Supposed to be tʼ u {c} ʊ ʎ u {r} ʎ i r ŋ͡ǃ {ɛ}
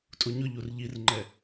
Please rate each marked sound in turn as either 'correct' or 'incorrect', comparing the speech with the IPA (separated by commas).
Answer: incorrect, correct, correct